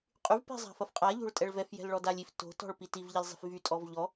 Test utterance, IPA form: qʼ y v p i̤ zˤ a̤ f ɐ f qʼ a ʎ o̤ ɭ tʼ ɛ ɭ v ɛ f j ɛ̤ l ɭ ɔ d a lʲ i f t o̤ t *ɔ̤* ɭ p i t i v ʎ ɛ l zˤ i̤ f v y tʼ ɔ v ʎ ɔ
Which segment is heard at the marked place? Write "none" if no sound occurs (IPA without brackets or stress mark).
ɔ̤